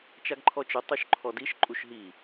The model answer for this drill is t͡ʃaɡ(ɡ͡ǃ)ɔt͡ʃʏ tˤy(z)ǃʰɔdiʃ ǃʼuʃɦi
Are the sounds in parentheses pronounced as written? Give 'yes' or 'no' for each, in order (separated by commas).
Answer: no, no